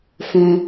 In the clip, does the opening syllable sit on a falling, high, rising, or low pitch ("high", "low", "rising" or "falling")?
low